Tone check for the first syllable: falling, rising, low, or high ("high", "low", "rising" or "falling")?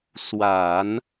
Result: low